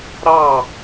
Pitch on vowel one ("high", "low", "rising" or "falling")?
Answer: falling